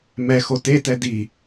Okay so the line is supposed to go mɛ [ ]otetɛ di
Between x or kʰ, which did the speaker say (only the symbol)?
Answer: x